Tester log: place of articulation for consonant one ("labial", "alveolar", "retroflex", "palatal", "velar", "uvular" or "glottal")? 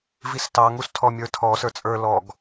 labial